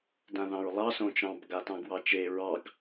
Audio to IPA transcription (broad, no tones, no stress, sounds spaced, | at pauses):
d ã ð ɑ̃ ɹ lˠ ɑ s õ t͡ʃ ɑ̃ b ɡ a t ɑ̃ ɡ w ɑ t͡ʃ e ɹ ɑ ɡ